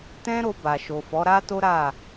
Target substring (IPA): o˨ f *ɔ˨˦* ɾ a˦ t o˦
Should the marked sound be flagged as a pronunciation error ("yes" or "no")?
no